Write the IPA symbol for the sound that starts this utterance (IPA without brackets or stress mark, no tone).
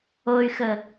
o